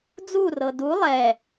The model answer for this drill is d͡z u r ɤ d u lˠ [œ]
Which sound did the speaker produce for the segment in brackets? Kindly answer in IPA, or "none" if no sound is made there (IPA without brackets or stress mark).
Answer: ɛ